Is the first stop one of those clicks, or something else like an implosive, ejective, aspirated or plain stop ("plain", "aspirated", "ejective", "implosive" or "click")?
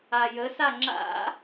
click